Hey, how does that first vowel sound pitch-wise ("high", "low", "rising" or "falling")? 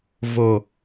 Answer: low